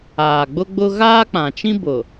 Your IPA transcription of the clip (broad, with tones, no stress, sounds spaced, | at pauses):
aː˨ ɡ͡b ʊ˦ ɡ͡b ʊ˦ ɣ aː˦ k͡p ã˨ t͡ʃ ĩ˦ b ʊ˨